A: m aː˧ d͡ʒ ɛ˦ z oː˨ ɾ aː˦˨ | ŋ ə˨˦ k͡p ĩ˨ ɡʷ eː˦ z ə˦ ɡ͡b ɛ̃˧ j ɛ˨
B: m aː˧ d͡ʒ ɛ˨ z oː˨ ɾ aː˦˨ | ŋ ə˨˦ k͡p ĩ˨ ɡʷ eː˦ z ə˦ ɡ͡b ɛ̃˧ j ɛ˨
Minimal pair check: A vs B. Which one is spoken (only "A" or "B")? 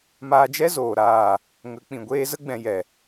A